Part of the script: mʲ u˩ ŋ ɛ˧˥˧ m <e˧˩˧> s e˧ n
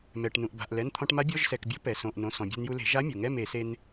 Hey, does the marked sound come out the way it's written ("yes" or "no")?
yes